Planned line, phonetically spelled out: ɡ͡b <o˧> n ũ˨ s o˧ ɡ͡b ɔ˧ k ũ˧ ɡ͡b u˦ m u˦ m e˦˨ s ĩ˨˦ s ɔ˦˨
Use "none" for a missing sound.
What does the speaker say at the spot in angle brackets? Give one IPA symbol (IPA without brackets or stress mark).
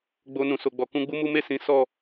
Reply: o˧